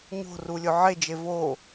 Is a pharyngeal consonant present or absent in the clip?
present